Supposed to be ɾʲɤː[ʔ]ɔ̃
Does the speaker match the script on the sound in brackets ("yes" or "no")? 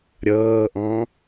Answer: yes